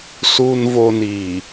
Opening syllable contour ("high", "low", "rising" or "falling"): low